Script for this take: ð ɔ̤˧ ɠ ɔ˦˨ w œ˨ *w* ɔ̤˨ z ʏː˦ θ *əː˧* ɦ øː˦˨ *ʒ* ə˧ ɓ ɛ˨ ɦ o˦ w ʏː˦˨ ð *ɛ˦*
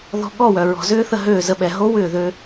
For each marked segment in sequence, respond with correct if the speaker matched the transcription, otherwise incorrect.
incorrect, incorrect, incorrect, incorrect

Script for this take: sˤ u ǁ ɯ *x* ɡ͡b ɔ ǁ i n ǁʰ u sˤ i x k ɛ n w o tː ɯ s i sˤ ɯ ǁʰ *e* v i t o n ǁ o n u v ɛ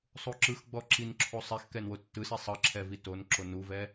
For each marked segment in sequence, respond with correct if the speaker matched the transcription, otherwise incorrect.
correct, incorrect

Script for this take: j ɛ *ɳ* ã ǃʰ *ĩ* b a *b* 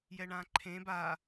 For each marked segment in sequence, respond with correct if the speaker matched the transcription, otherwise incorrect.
correct, incorrect, incorrect

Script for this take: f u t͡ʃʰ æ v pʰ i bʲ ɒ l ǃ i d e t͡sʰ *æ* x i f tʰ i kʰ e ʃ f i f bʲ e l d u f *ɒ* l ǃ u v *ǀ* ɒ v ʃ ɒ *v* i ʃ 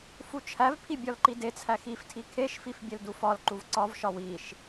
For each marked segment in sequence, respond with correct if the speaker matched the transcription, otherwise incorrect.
correct, correct, correct, incorrect

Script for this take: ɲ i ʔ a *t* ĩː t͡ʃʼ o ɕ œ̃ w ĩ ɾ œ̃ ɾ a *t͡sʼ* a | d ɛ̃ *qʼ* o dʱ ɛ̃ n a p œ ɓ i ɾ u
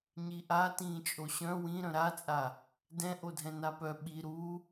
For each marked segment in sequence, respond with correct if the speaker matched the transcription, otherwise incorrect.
correct, correct, incorrect

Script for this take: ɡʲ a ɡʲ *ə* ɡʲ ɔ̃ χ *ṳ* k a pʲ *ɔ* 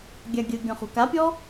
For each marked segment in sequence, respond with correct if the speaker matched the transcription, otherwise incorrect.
correct, correct, correct

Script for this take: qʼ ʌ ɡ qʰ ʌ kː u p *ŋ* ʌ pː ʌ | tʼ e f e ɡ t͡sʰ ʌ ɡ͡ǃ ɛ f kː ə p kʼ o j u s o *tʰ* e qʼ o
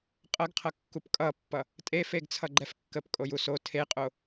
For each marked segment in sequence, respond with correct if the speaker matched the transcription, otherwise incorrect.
incorrect, correct

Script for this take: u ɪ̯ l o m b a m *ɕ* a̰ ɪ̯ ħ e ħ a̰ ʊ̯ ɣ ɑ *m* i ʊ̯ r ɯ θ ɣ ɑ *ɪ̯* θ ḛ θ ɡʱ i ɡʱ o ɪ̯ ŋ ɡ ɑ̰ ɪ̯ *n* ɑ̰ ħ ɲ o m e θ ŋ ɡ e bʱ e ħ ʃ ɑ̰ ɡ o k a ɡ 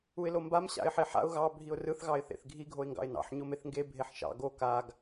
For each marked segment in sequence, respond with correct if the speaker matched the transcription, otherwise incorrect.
correct, incorrect, correct, correct

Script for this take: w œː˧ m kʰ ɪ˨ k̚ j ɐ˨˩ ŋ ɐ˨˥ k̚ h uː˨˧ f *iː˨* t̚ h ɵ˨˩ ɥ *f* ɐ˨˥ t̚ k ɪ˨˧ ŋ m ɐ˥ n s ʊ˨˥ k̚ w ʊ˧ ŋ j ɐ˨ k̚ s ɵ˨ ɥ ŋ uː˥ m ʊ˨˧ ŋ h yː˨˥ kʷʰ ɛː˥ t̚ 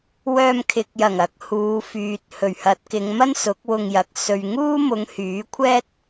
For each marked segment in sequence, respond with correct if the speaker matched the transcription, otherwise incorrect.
incorrect, incorrect

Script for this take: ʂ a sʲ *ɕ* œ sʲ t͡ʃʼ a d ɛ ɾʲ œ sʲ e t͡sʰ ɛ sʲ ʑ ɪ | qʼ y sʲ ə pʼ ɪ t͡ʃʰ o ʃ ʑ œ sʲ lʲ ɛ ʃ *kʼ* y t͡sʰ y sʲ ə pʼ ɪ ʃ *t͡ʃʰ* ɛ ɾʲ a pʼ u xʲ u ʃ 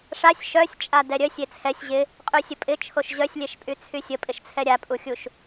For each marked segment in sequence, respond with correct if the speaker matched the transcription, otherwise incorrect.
incorrect, incorrect, incorrect

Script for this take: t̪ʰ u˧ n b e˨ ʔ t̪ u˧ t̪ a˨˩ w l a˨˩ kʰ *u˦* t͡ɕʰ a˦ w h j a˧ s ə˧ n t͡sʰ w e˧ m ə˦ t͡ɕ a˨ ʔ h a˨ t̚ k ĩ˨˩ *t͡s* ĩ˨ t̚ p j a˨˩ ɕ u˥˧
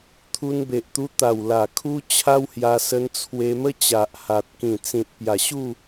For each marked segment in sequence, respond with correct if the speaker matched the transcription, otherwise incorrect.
correct, correct

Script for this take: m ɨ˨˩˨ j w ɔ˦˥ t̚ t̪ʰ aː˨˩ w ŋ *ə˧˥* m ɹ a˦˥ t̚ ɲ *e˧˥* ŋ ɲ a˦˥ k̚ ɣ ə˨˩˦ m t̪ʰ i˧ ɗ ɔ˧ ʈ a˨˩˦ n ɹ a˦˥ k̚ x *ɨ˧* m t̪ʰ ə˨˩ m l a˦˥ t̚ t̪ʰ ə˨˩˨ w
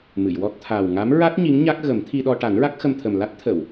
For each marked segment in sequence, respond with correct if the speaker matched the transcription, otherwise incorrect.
incorrect, incorrect, incorrect

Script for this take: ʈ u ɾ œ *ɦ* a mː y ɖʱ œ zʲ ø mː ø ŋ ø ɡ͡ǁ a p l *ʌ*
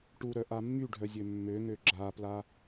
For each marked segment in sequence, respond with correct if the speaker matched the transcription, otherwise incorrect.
incorrect, incorrect

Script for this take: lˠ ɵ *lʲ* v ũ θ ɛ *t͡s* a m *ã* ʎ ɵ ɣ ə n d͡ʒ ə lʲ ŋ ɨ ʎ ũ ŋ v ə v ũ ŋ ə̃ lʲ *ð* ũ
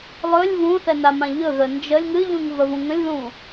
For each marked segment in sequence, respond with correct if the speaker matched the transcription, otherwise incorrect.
correct, incorrect, correct, correct

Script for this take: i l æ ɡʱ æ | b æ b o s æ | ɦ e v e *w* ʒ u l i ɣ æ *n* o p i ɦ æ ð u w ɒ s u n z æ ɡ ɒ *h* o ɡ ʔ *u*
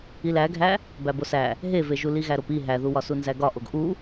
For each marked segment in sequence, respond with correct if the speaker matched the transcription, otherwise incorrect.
incorrect, incorrect, incorrect, correct

